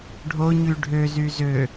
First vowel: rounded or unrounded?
rounded